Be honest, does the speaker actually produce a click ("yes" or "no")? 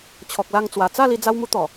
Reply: no